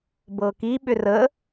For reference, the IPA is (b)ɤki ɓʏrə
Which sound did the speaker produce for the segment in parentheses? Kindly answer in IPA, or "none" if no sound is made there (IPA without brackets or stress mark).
b